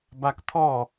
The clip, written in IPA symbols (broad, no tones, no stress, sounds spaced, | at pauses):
b a k t̪ʰ ɔ